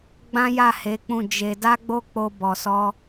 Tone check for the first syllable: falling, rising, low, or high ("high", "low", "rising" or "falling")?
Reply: high